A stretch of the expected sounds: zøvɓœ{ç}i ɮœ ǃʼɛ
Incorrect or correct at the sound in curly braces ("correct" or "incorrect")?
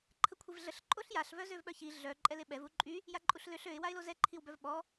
correct